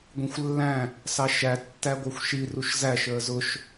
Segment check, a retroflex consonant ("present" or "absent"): absent